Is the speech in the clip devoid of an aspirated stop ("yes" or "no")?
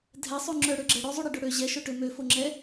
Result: yes